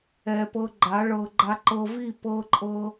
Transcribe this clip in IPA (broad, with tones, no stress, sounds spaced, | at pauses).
ɛ˨ p ɤ˧ ɡ͡ǃ a˨˦ ɭ ɤ˧ ɡ͡ǃ a˧ ǃ ɤ˧ v i˦˨ p ɤ˧ ǃʼ ɤ˧